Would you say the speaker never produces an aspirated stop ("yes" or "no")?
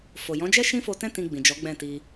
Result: yes